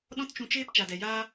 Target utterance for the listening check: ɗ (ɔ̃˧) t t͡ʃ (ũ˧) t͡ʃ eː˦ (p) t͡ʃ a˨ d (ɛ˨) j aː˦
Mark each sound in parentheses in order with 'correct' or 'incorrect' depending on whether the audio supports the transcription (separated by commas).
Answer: incorrect, correct, correct, correct